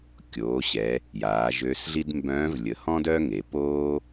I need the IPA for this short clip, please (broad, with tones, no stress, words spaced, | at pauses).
kʲoː˩˧ɕɛ˩˧ | jaː˩˧ʒø˧˥sɮi˥d mbœ̃ː˧˥vlʲə˩˧hɔ̃˥d œ˥ŋe˩˧poː˥